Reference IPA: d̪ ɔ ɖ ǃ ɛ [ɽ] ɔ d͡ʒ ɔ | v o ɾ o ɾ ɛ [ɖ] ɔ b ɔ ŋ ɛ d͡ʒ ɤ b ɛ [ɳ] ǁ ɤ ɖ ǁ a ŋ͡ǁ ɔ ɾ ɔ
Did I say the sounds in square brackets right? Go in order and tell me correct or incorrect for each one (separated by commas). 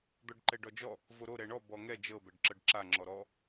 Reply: incorrect, incorrect, incorrect